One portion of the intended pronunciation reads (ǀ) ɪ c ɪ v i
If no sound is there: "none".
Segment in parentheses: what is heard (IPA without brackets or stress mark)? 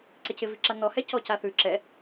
ǀ